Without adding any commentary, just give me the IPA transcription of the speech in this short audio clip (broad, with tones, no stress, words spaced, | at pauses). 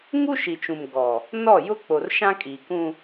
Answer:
ŋu˦ʃi˨t͡ʃũ˨m ɡɔ˨ | nɔ˦˨jʊ˦ k͡po˨rʃã˦kʼiː˨kũ˦